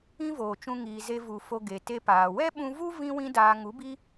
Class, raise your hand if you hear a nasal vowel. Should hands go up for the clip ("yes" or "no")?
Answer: yes